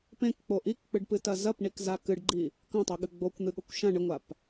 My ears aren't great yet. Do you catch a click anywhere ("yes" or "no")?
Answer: yes